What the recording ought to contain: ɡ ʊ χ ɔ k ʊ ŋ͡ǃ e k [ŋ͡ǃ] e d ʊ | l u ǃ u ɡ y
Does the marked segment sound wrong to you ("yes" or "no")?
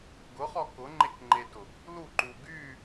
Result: no